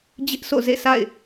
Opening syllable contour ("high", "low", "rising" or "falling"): high